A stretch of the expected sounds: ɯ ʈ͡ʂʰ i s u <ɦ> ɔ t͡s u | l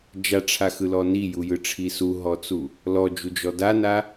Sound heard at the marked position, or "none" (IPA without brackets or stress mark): ɦ